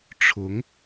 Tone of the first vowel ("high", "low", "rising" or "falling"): rising